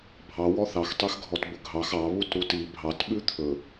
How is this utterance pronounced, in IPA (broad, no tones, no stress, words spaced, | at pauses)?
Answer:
bʱɑ wɔθɑx tˤɛxɡʱɔtbɵɡʱɑx ɑ βutɾuti bʱɑt ɓʉt̪ʰɵ